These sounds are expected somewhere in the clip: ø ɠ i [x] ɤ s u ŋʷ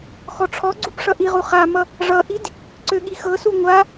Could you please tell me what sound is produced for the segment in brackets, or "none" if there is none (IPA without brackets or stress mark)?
x